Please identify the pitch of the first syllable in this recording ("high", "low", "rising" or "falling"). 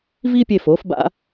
high